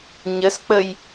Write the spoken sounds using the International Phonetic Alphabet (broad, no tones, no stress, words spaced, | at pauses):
ɲəsk͡pəj